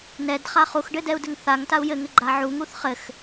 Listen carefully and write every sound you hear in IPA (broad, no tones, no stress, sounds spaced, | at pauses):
n ɛ d χ a χ u x ɖ ɘ d ɛ u̯ d ɘ ŋ θ a ŋ t a u̯ j ɘ ŋ ɘ ɡ͡ǃ a ʕ u ŋ u θ χ ɘ x